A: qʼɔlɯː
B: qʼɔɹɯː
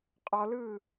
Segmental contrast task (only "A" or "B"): A